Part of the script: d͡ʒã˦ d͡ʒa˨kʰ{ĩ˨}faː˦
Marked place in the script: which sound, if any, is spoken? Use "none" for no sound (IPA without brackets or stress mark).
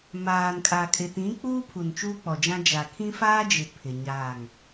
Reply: ĩ˦